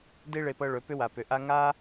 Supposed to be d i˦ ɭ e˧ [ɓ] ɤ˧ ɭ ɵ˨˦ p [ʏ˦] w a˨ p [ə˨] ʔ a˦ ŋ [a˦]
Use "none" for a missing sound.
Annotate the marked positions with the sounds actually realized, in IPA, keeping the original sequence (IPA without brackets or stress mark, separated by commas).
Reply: p, ʏ˦, ʏ˨, a˦